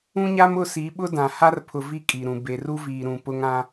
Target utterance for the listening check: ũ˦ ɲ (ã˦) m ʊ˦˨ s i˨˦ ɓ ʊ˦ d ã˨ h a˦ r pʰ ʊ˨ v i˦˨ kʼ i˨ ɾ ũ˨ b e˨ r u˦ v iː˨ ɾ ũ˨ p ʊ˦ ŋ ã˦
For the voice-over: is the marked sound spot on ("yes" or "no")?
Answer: no